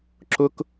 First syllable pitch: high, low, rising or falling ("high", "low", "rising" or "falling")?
high